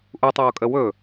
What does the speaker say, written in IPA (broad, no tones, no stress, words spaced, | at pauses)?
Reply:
ʔutˤoːkʼə wɵ